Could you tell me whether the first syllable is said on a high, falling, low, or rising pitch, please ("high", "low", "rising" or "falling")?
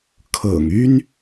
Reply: low